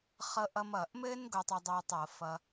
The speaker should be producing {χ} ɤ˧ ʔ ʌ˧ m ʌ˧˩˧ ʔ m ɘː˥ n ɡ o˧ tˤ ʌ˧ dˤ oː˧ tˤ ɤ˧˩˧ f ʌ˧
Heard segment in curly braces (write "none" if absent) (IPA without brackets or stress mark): χ